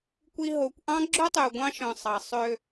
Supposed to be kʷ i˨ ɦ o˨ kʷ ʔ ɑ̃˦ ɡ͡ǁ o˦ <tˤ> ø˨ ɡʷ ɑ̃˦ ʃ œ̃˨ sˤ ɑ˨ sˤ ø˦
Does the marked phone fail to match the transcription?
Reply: no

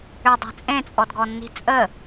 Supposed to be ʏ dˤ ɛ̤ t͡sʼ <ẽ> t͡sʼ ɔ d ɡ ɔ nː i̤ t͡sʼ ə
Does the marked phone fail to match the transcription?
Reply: no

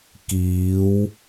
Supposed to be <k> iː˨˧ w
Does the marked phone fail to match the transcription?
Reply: no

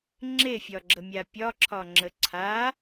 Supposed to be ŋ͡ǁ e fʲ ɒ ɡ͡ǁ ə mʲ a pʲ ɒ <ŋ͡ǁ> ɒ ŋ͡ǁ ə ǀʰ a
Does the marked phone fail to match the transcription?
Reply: yes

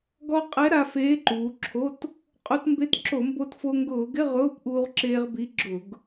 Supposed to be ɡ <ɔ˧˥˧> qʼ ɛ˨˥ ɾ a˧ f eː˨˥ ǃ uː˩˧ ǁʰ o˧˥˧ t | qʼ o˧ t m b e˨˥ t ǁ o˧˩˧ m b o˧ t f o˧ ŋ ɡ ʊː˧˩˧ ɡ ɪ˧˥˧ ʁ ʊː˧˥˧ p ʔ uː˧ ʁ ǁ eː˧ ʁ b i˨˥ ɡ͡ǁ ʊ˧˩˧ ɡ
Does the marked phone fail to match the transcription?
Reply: yes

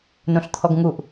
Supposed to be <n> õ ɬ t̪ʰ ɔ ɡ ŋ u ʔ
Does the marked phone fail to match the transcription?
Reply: no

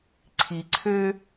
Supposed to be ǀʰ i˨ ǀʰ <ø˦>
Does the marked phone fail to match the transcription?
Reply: no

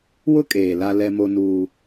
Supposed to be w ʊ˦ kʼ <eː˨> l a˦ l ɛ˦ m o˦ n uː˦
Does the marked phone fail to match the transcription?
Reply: no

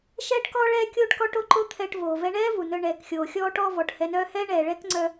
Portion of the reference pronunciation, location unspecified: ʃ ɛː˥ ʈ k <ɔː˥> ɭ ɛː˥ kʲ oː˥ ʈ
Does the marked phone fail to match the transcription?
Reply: no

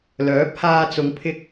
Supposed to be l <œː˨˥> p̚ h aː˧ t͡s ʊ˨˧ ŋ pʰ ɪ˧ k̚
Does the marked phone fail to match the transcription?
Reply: no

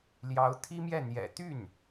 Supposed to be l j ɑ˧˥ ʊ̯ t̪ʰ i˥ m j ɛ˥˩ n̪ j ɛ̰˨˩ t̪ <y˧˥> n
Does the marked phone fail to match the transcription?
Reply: yes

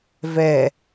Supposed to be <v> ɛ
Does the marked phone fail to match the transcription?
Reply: no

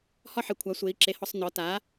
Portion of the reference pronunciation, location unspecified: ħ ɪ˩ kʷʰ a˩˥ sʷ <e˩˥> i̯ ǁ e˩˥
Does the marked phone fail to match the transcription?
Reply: no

